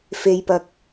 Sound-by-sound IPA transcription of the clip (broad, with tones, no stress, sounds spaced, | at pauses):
f e˨ j p ɐ˨ k̚